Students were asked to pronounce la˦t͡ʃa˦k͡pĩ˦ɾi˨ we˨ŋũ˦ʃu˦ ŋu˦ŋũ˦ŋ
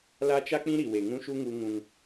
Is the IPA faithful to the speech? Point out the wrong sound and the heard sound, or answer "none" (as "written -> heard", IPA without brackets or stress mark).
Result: none